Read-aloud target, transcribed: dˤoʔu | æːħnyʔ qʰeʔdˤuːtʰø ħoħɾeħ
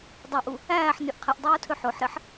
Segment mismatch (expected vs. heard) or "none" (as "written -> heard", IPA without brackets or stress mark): none